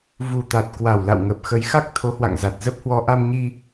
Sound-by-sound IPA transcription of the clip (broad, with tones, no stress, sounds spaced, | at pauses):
v u˨˩ t̪ a˨˩ t̚ k w a˨˩ w l a̰˧˨ w ŋ ə˨˩ p̚ x ə˨˦ j x a˦˥ k̚ t̪ʰ o˨˦ h w a̰˧˨ ŋ z a˨˩ t̚ z ə˦˥ p̚ h w ɔ˧ ʔ a˧ m ɲ i˧